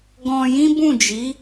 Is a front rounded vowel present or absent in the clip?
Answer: absent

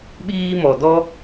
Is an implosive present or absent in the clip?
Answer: present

